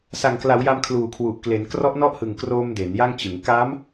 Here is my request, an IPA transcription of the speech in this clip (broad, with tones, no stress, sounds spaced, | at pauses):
s a˨˩ ŋ k l a˩˦ w j a˧ m kʰ l uː˨˩ kʰ w u˨˩ ʔ k l e˩˦ n k r ɔ˦˥ ʔ n ɔ˥˩ ʔ h ɯ˨˩ ŋ k r oː˧ m d e˩˦ n j a˥˩ ŋ t͡ɕ ɯ˩˦ ŋ k a˦˥ m